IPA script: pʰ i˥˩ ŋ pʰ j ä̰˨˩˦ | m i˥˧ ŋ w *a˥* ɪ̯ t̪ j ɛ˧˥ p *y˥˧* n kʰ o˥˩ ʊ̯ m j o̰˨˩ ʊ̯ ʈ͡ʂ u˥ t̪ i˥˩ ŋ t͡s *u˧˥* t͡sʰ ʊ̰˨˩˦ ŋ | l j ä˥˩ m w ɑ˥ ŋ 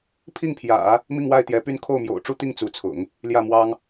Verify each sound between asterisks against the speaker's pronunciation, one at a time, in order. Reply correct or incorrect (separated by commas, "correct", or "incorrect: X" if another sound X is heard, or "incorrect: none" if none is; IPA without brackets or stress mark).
incorrect: a˥˩, correct, correct